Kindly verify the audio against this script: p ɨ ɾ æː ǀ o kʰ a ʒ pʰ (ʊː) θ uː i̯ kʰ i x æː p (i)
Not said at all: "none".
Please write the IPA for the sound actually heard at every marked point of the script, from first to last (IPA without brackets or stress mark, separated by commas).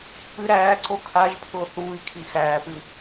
ʊː, ɨ